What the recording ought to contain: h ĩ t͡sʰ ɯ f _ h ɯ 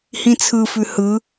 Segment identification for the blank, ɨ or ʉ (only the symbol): ʉ